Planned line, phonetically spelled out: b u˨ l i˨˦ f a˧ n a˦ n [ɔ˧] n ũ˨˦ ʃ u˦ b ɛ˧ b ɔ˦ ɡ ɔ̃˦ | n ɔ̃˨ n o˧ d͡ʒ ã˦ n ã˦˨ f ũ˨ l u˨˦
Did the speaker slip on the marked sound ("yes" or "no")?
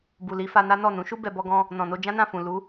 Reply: yes